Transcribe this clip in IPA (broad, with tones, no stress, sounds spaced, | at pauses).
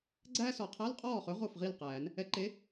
ɡ͡ǀ æː˥ s ɔ˨˩˦ qʰ æ˧˥˧ l qʼ ɔː˥˨ χ ɵ˨˥ ʁ o˥˨ f ʁ i˥˨ l q æː˨˩˦ n | ɛ˨˥ ǃ e˨˥